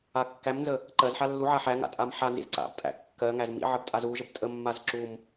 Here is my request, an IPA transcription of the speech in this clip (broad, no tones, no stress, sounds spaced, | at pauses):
a kː æ m n z ə | ǃ ɜ z ħ a lː u ʕ a ħ æ ŋ a̰ tʼ a m ħ a n z ḭ z ǀ a̰ b tʼ æ̰ kː ɜ ŋ æ z m ḭ ʕ ə b tʼ a z u ʒ ə b tʼ ə mː a z ǁ u m